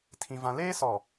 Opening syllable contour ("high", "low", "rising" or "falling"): high